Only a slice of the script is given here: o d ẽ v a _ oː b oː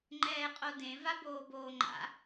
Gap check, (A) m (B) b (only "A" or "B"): B